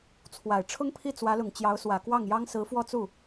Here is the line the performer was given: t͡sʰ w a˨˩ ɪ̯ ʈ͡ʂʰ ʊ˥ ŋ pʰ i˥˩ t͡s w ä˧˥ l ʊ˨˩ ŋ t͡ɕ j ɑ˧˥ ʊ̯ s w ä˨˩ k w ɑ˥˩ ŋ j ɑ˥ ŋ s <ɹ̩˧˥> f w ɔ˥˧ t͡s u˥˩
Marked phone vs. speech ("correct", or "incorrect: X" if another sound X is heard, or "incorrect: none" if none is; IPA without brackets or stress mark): correct